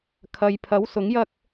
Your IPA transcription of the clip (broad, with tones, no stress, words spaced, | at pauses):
kʰɐ˨jpʰɐ˨˥w sʊ˨˥ŋjɐ˥k̚